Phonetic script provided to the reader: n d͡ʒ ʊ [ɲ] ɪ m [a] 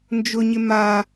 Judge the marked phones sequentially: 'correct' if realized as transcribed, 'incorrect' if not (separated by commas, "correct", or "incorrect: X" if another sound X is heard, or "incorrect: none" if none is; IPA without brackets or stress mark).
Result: correct, correct